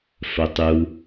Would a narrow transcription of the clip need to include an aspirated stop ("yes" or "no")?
no